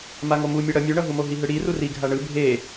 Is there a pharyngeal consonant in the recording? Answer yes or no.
no